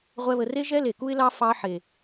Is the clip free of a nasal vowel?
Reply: yes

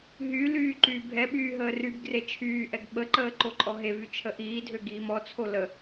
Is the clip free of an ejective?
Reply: no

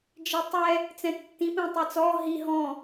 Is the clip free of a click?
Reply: yes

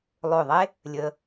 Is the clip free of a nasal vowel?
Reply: yes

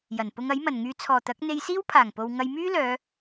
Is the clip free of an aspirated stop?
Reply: no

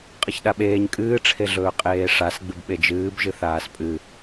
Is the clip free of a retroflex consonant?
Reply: no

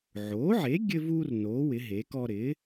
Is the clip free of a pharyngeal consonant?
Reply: no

